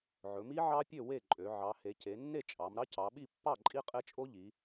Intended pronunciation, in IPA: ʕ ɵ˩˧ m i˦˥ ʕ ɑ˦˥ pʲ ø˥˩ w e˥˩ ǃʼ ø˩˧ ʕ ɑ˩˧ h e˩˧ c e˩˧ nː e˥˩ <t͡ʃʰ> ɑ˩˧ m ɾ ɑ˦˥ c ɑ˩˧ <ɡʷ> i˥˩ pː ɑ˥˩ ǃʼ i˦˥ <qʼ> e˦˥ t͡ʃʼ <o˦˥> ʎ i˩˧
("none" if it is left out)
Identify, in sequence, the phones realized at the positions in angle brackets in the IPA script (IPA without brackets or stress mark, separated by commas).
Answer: t͡ʃʼ, ɓ, qʼ, o˦˥